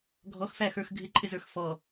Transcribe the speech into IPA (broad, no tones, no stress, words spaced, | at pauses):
ɡʱɔxfæxə˞x ɡʱɪǃʼɪzə˞x fɔ